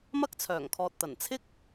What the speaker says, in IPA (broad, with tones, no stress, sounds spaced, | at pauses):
m ɐ˥ k̚ t͡sʰ œː˨˩ ŋ kʰ ɔː˨ t̚ t̪ ɐ˨˩ n t͡sʰ ɪ˥ k̚